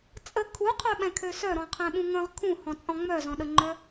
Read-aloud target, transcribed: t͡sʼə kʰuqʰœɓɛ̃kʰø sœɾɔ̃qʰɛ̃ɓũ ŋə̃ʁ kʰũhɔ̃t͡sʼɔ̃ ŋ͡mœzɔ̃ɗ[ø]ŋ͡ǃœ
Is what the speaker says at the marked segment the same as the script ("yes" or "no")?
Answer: no